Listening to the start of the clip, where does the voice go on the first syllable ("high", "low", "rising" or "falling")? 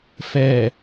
low